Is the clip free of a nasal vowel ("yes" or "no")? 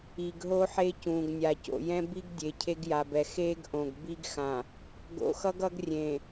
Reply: no